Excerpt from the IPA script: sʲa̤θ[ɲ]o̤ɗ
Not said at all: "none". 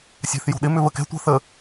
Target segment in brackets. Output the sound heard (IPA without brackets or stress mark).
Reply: j